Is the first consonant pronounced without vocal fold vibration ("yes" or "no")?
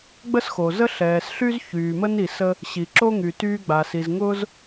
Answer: no